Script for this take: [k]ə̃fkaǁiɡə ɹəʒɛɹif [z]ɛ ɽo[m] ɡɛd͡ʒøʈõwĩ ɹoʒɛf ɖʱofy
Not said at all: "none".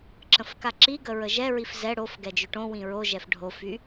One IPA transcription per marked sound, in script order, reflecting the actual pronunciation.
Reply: ǁ, z, f

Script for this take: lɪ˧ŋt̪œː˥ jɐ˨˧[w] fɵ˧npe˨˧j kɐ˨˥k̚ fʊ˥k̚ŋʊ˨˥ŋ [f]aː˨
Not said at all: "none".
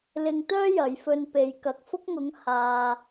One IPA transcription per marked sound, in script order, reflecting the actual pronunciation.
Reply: j, h

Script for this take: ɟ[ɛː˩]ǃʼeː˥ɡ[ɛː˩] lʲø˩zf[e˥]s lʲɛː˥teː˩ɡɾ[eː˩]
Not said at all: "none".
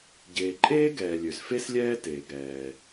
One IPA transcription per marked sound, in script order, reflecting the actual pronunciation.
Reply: eː˩, ɛː˩, e˥, ɛː˩

